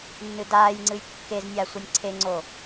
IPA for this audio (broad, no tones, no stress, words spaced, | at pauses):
nːɨdaːjŋ͡ǀɨj kːeznʲa sʷɨnʲǀʰeŋ͡ǀo